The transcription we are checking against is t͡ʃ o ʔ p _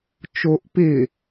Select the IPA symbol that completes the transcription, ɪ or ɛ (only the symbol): ɪ